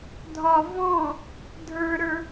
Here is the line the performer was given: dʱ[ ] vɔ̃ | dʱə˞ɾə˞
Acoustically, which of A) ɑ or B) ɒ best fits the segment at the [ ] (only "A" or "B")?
B